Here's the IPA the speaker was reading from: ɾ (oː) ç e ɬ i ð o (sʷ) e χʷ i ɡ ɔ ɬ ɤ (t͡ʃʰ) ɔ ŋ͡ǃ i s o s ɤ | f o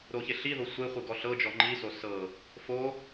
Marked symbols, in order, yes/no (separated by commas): no, yes, no